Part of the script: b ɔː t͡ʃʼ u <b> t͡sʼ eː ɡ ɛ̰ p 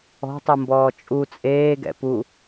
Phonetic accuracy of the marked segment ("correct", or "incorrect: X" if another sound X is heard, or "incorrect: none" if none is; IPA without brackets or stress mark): incorrect: none